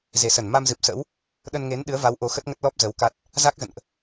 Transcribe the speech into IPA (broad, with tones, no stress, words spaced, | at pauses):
ze˨˩sə˧˩n ma˧mzɨ˨˩p̚sə̰˧˥w | ɗə˧nŋe˨˦n ɗɨ˨˦ə̯va˨˦w ʔo˨˦xə˦˥t̚ŋə˦˥t̚ lɔ˦˥p̚zə˨˦wka˦˥t̚ | za˦˥k̚zə̰˧˨nʔ